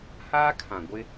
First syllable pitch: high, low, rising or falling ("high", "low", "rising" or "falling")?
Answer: high